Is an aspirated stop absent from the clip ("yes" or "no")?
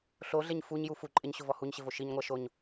yes